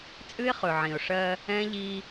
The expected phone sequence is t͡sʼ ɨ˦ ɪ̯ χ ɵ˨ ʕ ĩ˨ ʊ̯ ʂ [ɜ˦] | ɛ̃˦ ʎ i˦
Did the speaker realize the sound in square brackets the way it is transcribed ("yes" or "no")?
yes